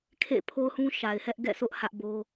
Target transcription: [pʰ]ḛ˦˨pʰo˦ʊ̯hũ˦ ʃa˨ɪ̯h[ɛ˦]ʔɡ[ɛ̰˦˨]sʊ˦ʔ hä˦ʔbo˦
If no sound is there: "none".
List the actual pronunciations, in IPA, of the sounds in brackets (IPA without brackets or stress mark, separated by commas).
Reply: kʰ, ɛ˦, ɛ̰˦˨